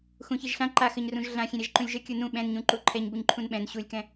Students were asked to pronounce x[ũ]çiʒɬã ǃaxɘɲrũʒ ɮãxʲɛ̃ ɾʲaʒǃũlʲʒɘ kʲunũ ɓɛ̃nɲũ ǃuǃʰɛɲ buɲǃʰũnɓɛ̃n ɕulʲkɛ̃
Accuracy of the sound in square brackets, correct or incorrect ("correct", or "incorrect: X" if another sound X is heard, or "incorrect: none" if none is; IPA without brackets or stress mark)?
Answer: correct